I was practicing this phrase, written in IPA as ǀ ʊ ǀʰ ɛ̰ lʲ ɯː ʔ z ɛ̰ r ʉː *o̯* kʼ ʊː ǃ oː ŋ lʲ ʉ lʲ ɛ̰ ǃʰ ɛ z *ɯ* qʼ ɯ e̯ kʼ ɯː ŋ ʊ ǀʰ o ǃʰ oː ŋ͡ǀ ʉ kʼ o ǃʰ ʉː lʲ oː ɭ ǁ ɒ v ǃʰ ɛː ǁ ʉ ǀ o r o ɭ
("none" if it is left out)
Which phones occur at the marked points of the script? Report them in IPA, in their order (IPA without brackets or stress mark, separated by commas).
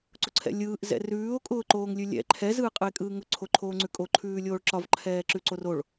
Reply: o̯, ɯː